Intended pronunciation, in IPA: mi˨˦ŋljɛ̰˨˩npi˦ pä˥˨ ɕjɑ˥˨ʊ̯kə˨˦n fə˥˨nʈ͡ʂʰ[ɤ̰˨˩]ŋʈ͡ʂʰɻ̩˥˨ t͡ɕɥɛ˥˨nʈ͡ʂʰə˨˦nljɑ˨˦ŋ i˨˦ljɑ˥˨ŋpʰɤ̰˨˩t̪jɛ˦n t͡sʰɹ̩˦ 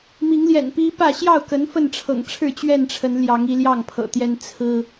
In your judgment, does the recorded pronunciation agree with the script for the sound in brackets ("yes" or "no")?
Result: yes